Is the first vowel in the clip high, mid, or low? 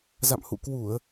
low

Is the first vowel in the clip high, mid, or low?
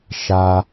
low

